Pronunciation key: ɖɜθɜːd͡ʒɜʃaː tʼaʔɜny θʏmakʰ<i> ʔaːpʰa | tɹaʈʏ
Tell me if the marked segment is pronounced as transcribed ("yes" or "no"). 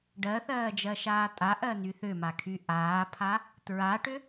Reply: no